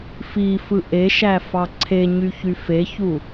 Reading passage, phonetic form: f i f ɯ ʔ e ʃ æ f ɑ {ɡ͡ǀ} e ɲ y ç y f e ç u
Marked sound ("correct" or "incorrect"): incorrect